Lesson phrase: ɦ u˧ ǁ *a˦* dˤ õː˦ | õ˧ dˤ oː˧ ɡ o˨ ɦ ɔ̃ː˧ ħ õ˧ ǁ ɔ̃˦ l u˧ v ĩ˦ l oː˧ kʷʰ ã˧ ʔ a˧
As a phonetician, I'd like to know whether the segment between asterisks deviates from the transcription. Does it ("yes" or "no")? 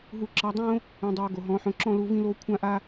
yes